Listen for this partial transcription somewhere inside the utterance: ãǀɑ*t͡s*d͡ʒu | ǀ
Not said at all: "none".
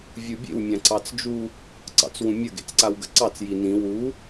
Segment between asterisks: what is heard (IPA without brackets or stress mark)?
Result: t͡s